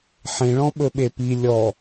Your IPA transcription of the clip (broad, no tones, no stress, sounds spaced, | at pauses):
ħ ẽ ɭ ɔ̃ ɓ ɵ ɓ e p i lʲ ɔ